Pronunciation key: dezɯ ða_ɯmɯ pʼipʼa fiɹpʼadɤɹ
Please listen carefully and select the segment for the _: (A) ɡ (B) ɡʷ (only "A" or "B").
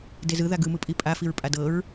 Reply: A